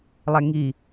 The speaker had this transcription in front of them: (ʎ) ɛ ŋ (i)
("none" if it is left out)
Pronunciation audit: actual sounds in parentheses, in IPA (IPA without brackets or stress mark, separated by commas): lˠ, i